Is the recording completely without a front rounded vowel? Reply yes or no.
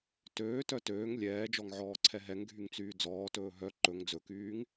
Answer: no